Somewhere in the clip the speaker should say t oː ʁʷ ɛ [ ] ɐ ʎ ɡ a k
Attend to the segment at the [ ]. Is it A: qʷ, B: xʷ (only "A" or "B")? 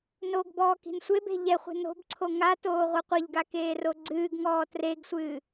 A